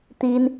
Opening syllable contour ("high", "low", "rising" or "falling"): high